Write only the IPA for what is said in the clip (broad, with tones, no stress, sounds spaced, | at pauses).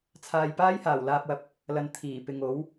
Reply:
t͡sʰ aː˨ j p aː˥ j h aː˨˩ w l aː˧ p̚ w ɐ˧ p̚ | l ɐ˨ n t̪ʰ iː˨˩ p ɪ˨ ŋ o˨˥ w